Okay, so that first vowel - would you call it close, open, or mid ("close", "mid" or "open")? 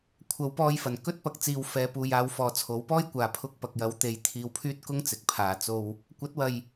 open